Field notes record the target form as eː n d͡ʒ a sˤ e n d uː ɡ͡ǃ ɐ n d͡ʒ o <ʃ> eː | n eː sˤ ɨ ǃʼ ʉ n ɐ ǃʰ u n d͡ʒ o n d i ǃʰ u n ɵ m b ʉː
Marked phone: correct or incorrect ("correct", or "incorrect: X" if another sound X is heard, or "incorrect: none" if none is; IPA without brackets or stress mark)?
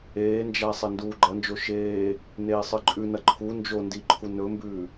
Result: correct